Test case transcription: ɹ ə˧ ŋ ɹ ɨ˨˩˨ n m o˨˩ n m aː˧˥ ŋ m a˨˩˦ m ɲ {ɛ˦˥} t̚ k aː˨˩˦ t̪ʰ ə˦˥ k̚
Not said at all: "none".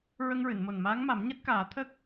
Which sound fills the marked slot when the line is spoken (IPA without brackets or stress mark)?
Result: ɛ˦˥